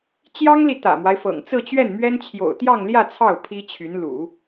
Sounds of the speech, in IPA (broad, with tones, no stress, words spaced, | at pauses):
t͡ɕjɑ˥ŋli˨ t̪ä̰˨˩mwa˦ɪ̯fɤ̰˨˩ŋ t͡sɹ̩˥˧t͡ɕɥɛ˥˩nmɥɛ˥nt͡ɕʰjo̰˨˩ʊ̯ t̪jɑ˥˧ŋljä˥˧ t͡sʰɑ˥˩ʊ̯ pʰi˥t͡ɕʰy˧˥n lṵ˨˩˦